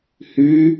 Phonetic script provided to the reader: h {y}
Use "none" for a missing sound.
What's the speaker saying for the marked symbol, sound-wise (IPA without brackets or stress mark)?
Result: y